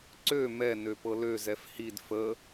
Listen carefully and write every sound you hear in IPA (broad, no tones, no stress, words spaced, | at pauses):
ǀø mɛ nøpɤlø zɛfhid fə